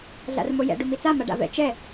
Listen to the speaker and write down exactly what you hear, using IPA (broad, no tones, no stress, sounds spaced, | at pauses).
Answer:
ɮ a̰ r m o j ɛ̰ ɖ u m i t͡s a m a ɖ a̰ v ɛ̰ t͡ʃ ɛ